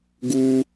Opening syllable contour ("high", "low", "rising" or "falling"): high